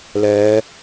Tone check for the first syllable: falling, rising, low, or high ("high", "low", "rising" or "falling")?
rising